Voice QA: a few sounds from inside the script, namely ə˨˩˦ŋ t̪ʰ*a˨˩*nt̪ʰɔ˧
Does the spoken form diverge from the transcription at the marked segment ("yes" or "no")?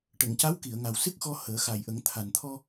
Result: no